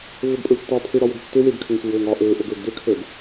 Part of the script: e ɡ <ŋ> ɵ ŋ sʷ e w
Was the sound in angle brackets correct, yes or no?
no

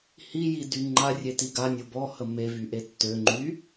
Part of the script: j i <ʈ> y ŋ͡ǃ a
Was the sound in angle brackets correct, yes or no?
no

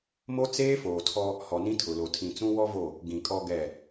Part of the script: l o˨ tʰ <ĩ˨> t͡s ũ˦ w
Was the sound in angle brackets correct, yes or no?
yes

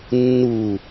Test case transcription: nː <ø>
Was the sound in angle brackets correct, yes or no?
no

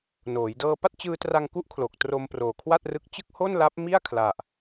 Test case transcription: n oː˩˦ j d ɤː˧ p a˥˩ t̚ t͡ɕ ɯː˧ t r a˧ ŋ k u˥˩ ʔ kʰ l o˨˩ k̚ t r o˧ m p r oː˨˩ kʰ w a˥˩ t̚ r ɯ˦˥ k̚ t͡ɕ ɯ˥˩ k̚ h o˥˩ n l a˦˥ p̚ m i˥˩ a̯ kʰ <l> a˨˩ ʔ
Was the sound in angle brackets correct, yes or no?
yes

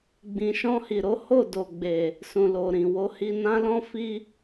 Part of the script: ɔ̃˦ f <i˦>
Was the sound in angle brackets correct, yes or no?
yes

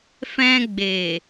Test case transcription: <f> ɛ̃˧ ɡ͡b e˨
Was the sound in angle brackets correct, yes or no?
yes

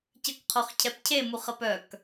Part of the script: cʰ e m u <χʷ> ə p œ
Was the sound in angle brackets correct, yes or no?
no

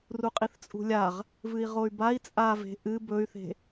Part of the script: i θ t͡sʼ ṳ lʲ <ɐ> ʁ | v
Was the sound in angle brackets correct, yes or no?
no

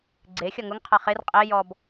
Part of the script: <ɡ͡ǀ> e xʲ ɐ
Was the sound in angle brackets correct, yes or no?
yes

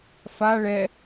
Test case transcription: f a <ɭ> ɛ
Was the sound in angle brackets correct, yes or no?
yes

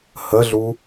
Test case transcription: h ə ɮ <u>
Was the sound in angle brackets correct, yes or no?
yes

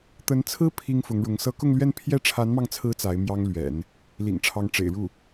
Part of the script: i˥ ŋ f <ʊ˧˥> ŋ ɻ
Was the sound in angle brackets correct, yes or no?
yes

